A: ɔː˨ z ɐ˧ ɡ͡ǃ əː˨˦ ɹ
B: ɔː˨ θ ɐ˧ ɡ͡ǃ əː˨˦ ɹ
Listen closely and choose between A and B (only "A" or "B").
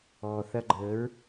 B